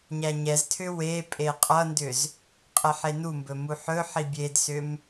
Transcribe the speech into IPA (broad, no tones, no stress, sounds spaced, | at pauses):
ɲ æ ɲ ɛ z tʰ ʏ w e pʼ e qʼ ʌ n d ʏ z | qʼ ɛ ħ e n u m b ɵ m u ħ ɵ ħ i bʲ e d s ʏ m